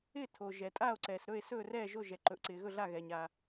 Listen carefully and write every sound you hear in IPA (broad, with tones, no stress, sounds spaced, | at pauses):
ɪː˥˨ tʰ o˩ ʒ ɛ˩ tʼ a˥˨ o̯ ǀ ɛː˩ s ɾ ɵ˥˨ e̯ s ɵː˥˨ r ɛː˥˨ ʒ o˥˨ ʒ ɛ˩ ǃ ɵ˩ ʔ ǀ ɪː˩ ɣ ɵ˥˨ ɮ a˥˨ ɣ ɛː˩ ɲ a˩